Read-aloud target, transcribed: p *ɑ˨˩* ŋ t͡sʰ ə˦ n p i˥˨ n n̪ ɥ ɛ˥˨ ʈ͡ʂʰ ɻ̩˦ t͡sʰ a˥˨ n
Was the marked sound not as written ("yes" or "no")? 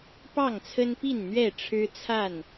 yes